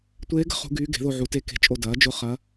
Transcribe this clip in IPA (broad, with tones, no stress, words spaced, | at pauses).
tʷeː˧˥ɡə̤˧˥ χṳ˧˥ɡyː˧˥ ɡe̤˩˥ðo˦˨ʕu˩˥te˦˨ ke̤˧˥t͡ʃʼo˦˨ dɐː˩˥d͡ʒʊ˦˨ χɐ˧˥